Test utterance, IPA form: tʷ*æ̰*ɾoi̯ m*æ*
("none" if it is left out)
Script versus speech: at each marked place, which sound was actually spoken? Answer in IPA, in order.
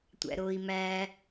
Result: æ̰, æ

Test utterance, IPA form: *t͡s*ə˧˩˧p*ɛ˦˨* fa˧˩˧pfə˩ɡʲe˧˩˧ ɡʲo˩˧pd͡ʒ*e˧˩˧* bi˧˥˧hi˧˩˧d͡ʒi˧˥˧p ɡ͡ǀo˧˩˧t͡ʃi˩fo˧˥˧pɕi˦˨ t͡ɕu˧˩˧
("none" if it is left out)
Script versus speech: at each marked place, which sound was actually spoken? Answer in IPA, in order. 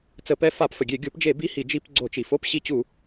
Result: t͡s, ɛ˦˨, e˧˩˧

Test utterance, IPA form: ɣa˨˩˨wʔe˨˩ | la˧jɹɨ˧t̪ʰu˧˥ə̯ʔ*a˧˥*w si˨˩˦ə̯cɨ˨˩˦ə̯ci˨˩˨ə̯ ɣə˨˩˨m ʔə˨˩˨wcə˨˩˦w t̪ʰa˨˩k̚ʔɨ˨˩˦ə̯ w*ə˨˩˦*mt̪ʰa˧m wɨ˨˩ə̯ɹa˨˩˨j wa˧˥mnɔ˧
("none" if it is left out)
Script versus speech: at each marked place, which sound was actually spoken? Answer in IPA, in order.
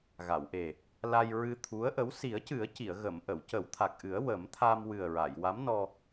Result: ə˧˥, ə˨˩˦

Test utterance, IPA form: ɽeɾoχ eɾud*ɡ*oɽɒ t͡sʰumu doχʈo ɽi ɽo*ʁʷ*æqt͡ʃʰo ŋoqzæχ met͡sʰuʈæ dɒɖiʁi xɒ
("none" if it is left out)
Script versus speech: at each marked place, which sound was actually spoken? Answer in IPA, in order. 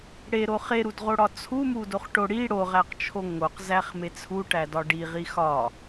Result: ʁ, ʁ

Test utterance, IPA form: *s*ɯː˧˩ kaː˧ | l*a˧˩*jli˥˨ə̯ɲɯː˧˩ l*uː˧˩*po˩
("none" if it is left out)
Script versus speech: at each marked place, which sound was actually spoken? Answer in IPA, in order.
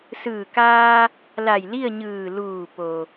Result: s, a˧˩, uː˧˩

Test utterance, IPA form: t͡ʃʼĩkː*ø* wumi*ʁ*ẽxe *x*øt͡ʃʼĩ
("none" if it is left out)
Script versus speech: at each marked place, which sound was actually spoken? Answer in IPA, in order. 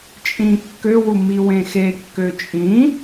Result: ø, w, kː

